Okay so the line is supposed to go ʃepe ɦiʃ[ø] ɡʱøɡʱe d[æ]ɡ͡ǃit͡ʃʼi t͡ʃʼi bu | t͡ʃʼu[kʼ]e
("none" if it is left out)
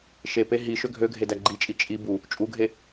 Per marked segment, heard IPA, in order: ø, æ, ɡʱ

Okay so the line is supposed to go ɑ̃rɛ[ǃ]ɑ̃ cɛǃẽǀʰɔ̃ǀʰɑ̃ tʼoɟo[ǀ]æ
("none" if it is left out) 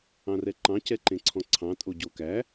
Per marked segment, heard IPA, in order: ǃ, k

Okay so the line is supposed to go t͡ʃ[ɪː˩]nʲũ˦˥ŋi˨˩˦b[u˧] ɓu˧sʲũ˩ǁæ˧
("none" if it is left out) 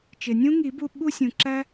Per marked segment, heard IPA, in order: ɪ˩, u˧

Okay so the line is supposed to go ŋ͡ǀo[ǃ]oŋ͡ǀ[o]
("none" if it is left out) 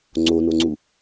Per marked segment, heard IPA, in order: n, u

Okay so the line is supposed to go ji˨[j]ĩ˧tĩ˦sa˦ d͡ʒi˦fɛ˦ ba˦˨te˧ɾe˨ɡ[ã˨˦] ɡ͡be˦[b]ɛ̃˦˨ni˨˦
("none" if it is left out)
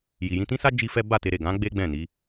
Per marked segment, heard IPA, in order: j, ã˨˦, ɡ͡b

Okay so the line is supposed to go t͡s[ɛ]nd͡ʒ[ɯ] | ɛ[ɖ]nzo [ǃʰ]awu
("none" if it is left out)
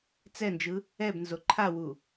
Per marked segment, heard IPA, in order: ɛ, ɯ, b, ǃʰ

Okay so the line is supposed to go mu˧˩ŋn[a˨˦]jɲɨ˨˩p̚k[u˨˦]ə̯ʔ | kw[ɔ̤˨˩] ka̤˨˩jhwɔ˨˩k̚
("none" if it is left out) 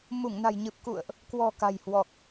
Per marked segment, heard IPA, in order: a̤˨˩, ṵ˧˨, ɔ̤˨˩

